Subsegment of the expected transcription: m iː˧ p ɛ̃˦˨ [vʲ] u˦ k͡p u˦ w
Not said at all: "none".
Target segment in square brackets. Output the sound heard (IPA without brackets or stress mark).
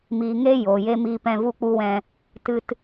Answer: v